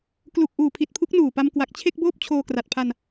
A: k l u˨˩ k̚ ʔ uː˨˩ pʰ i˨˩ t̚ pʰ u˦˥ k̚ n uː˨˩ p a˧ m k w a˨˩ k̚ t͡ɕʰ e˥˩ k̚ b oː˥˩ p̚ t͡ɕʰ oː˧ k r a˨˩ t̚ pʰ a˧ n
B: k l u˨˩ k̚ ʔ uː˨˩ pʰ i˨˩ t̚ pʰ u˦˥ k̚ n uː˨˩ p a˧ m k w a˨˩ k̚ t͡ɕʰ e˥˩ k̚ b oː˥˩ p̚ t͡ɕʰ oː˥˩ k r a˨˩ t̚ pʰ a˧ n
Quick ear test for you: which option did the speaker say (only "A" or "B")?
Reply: A